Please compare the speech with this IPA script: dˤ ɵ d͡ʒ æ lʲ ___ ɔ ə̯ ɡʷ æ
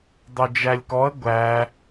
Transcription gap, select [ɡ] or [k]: k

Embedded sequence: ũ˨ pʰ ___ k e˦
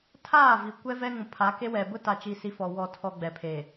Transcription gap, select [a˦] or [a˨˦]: a˨˦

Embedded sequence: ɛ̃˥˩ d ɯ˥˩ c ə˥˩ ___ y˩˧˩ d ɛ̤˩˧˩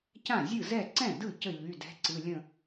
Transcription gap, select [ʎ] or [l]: ʎ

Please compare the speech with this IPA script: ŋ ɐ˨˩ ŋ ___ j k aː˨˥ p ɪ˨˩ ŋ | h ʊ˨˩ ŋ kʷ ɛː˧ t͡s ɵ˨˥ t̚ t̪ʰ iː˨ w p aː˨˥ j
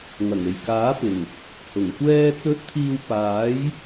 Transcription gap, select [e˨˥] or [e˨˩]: e˨˩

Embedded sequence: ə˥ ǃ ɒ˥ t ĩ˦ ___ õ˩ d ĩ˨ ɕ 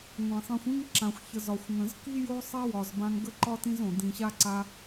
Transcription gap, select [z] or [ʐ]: z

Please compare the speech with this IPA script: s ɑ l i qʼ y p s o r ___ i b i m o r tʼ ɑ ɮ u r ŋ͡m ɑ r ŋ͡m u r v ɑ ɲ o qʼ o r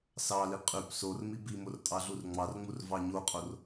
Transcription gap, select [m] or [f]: m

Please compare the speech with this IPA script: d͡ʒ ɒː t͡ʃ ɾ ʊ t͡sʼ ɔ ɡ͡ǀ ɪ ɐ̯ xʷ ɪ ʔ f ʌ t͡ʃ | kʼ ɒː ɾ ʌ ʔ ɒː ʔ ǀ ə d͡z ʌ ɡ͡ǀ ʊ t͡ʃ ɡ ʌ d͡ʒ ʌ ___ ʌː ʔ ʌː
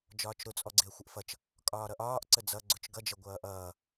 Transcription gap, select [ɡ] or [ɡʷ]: ɡʷ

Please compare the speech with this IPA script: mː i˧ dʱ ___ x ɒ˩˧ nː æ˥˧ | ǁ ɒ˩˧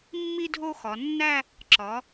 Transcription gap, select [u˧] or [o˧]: o˧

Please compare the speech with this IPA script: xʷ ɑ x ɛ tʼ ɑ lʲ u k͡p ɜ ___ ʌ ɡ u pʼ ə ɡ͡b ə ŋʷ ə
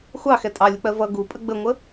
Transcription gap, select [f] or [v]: v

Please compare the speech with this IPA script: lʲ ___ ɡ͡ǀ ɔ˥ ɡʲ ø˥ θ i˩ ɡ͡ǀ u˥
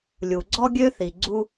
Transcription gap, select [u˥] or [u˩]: u˩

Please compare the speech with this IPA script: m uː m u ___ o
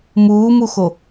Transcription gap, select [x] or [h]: x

